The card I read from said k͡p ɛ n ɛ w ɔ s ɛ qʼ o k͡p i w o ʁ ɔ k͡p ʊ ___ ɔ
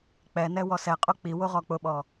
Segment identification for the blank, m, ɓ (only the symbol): ɓ